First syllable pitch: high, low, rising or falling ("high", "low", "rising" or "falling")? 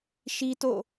high